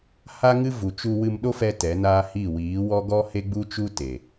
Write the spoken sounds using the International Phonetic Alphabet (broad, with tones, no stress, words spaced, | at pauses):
ha˦ŋɨ˦vu˨t͡ʃu˧ wɨ˧mɗo˦fɛ˧ tɛ˨˦naː˦hi˦˨ wiː˨˦wɔ˦ ɡɔ˦he˦ɡ͡bu˦t͡ʃu˦ te˨